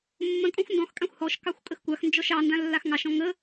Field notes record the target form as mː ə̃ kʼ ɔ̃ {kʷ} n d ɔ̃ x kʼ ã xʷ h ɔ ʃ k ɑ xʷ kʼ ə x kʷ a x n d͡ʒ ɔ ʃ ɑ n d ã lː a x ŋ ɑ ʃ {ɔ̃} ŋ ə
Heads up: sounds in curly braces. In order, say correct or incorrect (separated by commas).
incorrect, correct